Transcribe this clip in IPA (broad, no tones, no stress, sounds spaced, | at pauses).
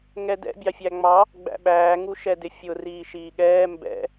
ŋ ɛ d ɛ̰ bʲ ɑ fʲ æ ŋ͡m ɑ | ɡ͡b æ̰ ɓ æː ŋ u ʃ ɛ d ɪ fʲ ʊ r iː ʃ iː ɠ ɛː m b ɛ̰